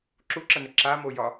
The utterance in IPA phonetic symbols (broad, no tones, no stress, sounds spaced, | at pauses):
ǁ u ǁ ə n ə ǁ a m o j ɒ